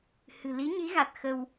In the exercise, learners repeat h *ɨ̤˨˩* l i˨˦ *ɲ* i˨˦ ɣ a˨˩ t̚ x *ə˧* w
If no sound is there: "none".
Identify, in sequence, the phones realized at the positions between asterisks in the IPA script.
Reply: ɨ̤˨˩, ɲ, ə˧

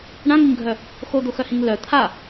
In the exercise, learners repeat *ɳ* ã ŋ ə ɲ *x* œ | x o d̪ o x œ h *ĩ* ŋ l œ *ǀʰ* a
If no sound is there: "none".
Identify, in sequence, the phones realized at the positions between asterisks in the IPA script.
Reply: ɳ, ɡʱ, ĩ, t̪ʰ

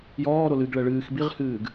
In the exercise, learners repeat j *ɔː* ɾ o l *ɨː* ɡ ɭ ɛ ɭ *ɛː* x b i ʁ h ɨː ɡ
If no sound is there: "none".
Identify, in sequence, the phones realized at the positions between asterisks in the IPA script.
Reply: ɔː, ɨ, ɨː

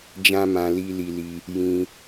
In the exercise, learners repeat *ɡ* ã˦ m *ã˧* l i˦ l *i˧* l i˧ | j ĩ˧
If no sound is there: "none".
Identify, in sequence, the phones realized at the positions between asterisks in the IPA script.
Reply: d͡ʒ, ã˧, i˧

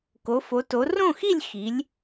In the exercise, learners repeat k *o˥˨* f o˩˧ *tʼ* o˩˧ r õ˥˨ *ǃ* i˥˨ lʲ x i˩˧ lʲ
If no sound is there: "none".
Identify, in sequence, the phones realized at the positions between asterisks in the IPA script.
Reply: o˩˧, t, x

